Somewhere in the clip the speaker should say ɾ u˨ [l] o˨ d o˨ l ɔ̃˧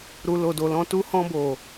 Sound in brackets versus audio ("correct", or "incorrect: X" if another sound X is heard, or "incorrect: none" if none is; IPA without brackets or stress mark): correct